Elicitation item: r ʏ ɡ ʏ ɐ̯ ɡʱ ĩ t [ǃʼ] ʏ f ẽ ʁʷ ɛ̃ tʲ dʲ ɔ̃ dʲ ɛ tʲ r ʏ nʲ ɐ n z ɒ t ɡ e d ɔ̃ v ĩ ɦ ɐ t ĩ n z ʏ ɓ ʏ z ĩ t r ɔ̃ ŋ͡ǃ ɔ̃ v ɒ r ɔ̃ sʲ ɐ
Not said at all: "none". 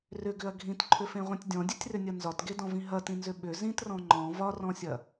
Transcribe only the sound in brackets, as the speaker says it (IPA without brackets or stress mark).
ǃʰ